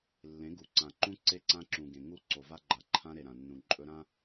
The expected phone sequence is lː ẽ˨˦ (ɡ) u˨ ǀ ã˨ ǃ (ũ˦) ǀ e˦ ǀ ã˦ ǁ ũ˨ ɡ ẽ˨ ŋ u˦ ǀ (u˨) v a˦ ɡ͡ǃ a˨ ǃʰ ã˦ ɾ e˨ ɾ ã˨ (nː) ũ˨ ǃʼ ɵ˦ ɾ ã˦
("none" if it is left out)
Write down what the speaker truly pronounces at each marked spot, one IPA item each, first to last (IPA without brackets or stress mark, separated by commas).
ɡ, ũ˦, o˨, nː